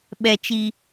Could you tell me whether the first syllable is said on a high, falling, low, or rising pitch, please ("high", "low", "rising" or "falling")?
high